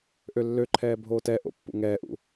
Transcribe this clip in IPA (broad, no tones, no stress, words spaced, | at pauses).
ʔølːøǃʰɛː bʱoːtɛʔo̰ pːṵŋɛːʔṵ